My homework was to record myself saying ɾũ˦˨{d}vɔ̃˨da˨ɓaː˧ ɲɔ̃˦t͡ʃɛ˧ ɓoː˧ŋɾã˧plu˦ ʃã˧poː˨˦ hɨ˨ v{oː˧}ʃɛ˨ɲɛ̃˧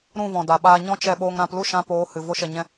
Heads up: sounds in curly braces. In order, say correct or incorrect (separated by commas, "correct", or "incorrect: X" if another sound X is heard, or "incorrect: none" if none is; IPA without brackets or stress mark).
incorrect: none, incorrect: o˧